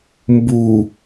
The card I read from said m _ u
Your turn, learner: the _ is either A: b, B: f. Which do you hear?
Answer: A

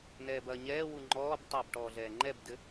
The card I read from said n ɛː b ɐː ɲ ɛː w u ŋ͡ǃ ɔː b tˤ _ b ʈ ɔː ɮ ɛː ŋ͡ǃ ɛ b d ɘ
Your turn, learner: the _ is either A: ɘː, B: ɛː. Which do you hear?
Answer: A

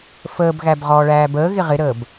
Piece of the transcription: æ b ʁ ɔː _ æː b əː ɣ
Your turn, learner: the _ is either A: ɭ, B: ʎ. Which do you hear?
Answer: A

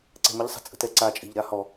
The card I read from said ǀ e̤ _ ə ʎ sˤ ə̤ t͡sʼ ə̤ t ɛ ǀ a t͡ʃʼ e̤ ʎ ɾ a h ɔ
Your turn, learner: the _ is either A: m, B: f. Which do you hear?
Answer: A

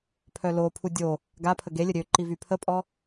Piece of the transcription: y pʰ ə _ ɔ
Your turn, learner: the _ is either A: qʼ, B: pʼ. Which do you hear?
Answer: B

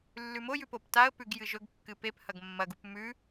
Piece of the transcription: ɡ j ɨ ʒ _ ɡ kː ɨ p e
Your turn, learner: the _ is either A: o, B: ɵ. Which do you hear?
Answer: B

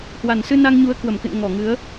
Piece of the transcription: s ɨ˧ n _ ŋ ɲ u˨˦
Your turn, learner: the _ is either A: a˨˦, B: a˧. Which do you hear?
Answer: B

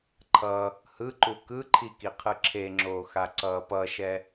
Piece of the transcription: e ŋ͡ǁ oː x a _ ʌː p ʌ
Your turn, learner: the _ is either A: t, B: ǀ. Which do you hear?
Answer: B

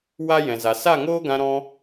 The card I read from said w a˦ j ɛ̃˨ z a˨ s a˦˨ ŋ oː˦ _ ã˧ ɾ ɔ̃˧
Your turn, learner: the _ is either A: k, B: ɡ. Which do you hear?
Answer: B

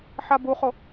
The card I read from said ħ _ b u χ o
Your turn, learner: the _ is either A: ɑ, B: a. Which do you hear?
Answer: B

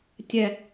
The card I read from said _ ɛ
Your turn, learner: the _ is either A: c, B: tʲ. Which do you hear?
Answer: B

